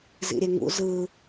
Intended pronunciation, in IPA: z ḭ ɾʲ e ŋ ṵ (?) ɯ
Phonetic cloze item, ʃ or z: z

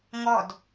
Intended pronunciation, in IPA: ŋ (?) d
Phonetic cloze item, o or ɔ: ɔ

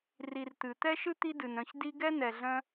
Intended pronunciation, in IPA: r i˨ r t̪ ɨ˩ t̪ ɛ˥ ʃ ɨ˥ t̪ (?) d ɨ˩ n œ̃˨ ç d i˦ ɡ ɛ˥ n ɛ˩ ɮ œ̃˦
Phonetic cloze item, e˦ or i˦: i˦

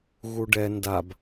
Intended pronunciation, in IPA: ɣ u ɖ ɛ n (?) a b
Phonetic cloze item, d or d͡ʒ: d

